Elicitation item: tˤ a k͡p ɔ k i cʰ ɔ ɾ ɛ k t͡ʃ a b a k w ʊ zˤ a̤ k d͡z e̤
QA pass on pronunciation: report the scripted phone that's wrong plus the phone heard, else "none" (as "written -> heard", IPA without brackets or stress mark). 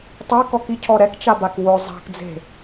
k͡p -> k